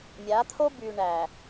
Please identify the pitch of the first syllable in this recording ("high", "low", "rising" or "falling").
rising